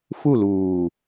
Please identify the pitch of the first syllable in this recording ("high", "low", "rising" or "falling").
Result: falling